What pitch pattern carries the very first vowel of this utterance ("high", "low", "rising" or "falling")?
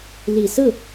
low